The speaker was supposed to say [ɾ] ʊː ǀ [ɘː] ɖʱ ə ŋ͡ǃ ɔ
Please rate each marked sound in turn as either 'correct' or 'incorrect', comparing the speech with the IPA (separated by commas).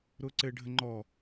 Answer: correct, correct